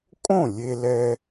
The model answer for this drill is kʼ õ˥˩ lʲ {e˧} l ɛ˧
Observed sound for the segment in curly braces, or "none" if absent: e˧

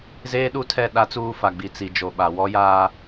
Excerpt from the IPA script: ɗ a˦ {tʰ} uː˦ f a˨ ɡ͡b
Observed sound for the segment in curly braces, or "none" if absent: t͡s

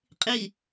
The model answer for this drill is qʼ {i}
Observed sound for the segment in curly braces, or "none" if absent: i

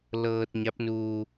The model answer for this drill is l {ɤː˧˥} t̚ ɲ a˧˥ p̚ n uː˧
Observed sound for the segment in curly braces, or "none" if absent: ɤː˧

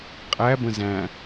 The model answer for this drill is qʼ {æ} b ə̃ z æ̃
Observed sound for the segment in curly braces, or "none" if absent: æ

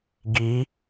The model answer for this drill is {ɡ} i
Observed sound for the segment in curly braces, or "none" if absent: ɡ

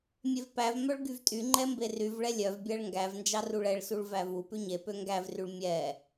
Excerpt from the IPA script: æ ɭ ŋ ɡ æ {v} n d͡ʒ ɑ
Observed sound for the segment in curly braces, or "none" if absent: v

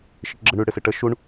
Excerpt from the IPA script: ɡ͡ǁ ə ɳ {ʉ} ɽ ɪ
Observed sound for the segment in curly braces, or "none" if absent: ʉ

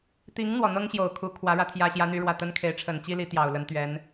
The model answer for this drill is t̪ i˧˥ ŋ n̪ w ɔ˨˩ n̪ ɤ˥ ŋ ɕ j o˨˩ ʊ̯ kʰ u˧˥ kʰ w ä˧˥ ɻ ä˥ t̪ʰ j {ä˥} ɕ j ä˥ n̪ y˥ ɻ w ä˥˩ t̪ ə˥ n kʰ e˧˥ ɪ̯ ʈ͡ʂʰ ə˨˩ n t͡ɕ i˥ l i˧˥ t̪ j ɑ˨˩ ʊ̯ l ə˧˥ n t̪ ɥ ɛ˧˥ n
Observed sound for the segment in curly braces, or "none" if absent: ä˥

